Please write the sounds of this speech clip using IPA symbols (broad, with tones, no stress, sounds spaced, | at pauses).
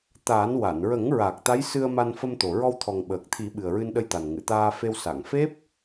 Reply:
t̪ a˨˩˦ n w a˨˩˨ n ɹ ə˨˩˦ ŋ ɹ a˨˩ k̚ t̪ a˧˥ j s ɨ˧ ə̯ m a˧ n f ə˧ m t̪ o˨˩ ɹ ɔ˧ w t̪ʰ ɔ˨˩ ŋ ɓ əː˨˩ k̚ t̪ʰ i˨˩˦ ɓ ɨ˨˩ ə̯ ɹ ɨ˧ n ɗ ə˧ j t̪ a˨˩ n ŋ ɨ˨˩˨ t̪ aː˧ f e˧ w s a˨˩˨ ŋ f e˦˥ p̚